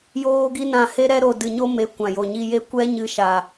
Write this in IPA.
j oː˦ ɡ i˦ n ã˦˨ h e˦ ɾ ɛ˦ ɾ o˨ d ɨ˨ ɲ o˦ m e˨˦ kʷ ã˨ j o˨ ɲ i˧ j e˦˨ kʷ ɛ˦ ɲ ɨ˧ ʃ a˨

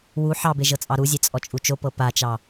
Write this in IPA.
w u ħ ɑ b e ʒ ɤ t͡sʼ ɑ ɾ u zʲ e t͡sʼ ɔ t͡ʃʼ u t͡ʃ o p ɤ p a t͡ʃ ɑ

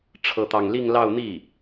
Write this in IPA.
ʈ͡ʂʰ ɤ˥˧ t̪ ɑ˥˧ ŋ l i˥˧ ŋ l ɑ˥˧ ʊ̯ n̪ i˥˩

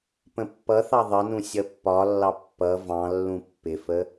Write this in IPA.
p ə̃ pː ʌ θ ɑ ðˤ ʌ n ũ sʲ ʌ pː ɒ lː ɑ pː ʌ v ɑ̃ lː ũ pː ɪ f ə

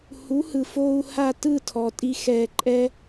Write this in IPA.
h u˩˥ h ɯ˩ f oː˧ u̯ h a˥˩ t ɯ˥˩ tʰ ɔ˩ tʼ i˧ x ɛ˧ ǃʼ ɛ˥

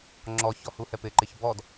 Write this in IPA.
ŋ͡ǁ ɔ ç ɔ h u h ɛ p ɪ ǃ ɪ ç b ɔ d

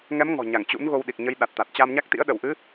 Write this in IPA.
ŋ ɛ˨˦ m ŋ ɔ̤˨˩ ɲ a˧˩ ŋ t͡ɕ ṵ˧˥ n ɣ o˧ w ɗ i˨˩ k̚ ɲ ə˨˦ j ɗ a˨˩ t̚ t̪ a˨˩ t̚ t͡ɕ a˧ m ɲ a˦˥ k̚ t̪ ḭ˧˥ ə̯ ɗ ə˧˩ w ʔ ɨ˨˦

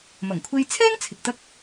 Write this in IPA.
m ɐ˨˩ ŋ kʷʰ e˧ j t͡sʰ ɛː˥ ŋ t͡sʰ ɪ˨ k̚ t̪ ɐ˥ k̚

